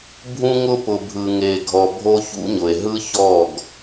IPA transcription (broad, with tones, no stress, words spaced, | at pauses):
bʱũ˦ŋʊ˦pʊ˨bʱɯ˨ ŋe˨ ɡʱɔ˨ bʱo˦çṵ˦ɲʊ˨e̯ ɦɯ˦çɔ˦˨ɡ